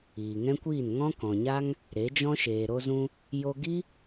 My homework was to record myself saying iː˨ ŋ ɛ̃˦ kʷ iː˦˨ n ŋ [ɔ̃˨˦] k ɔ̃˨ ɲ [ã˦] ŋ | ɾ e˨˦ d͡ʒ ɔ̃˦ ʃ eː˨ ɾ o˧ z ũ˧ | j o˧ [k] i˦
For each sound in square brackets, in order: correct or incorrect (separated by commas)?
incorrect, incorrect, incorrect